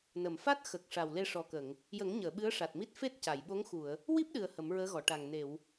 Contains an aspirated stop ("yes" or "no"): no